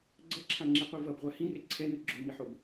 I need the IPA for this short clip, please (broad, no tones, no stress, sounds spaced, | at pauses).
ɡ͡ǀ ʌ ǁʰ ã ŋ͡ǁ i qʷ i v ʌ b ʁʷ a h ĩ r e ǀʰ ɛ n ɯ ɡ͡ǁ o m i ħ o b